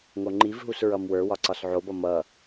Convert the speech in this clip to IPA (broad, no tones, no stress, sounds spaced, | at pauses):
ŋ o ŋ͡ǃ i v ɦ u s ɹ ʌ m w ə˞ w ɒ ǀ ɒ s ʕ o b ʌ m ʌ